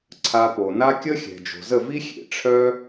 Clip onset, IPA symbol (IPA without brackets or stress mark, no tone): ǀʰ